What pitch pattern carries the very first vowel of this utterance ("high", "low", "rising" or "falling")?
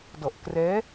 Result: low